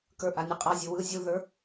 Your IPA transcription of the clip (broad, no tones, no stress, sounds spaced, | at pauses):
k ə˞ ʔ a nʲ ɯ qʼ a zʲ ɯ w ɯ zʲ u ð ə˞